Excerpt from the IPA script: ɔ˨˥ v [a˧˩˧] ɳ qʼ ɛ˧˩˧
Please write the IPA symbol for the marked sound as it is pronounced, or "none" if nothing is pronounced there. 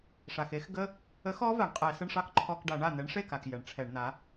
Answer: a˩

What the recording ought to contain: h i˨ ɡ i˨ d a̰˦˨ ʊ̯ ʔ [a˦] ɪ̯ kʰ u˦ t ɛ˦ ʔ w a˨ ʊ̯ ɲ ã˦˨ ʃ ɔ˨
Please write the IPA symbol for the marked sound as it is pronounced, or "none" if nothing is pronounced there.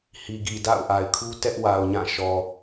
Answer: a˨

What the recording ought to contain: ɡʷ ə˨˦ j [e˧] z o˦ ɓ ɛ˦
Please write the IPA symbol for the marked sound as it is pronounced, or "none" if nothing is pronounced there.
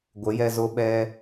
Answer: ɛ˧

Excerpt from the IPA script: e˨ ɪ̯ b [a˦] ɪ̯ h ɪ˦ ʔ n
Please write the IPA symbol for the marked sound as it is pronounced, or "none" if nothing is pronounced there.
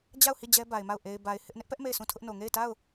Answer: a˨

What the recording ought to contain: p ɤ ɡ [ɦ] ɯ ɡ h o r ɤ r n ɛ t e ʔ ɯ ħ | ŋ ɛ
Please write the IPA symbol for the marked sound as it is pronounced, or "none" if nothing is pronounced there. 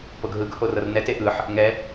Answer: ɦ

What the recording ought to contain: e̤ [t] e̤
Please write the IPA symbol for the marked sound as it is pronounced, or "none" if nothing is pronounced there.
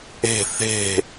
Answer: θ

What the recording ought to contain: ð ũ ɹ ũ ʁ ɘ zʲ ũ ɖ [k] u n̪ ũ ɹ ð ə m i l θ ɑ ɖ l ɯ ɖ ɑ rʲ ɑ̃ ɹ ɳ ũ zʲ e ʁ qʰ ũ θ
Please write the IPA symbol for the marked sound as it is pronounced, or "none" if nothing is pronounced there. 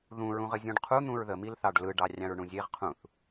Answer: qʰ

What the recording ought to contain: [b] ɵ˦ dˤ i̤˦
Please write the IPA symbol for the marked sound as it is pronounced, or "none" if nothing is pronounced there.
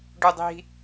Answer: ɖ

